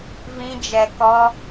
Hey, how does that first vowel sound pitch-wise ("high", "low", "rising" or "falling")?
high